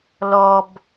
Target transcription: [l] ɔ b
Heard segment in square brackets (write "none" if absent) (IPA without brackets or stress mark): l